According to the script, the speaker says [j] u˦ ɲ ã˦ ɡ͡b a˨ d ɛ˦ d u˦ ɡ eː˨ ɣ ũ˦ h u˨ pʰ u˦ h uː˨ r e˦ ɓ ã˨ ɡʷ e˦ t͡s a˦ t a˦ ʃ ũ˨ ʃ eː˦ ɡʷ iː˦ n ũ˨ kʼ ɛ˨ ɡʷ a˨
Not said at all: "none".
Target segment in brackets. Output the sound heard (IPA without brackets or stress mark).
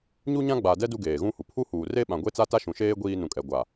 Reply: ɲ